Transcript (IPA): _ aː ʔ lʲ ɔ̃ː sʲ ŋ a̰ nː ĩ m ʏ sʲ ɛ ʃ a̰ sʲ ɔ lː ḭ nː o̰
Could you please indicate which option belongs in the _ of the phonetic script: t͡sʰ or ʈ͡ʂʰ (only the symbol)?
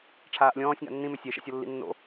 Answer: ʈ͡ʂʰ